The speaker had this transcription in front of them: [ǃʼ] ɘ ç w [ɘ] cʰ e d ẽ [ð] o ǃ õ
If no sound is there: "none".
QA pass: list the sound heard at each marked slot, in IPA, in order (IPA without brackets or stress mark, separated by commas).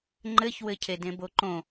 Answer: ŋ͡ǃ, ɘ, b